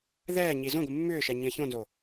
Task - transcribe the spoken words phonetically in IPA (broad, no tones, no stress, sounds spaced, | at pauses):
ð ɛː ɲ i z õ ɡʷ ɨ mː ʏː ʃ ɛ ɲ ĩ ə̯ ç õ n z o